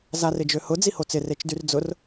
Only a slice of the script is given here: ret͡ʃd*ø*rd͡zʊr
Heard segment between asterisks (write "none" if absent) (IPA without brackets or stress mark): y